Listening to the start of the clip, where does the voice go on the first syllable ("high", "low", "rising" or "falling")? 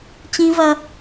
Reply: high